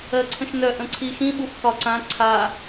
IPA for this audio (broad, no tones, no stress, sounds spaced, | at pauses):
ɜ ǀʰ ə̃ ʃ n œ ʔ ə̃ ǀʰ i x ĩ ɓ u f k ɒ ǀ ã ǀʰ a